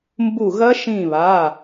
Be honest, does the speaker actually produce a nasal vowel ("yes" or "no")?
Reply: yes